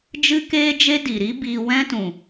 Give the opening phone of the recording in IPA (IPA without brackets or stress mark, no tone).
d͡ʒ